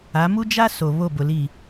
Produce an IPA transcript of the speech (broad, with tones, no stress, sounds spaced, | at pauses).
a˨˦ m u˦ d͡ʒ a˦ s o˨ β o˦˨ b ʊ˨ l i˦˨